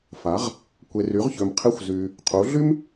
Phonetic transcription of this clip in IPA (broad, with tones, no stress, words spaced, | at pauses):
fa˩˥ʁ | kʷe˨ry˩˥ʁçø˨m qʰe˧˥˧xʷzyː˨ | qʰu˩˥ɮy˥m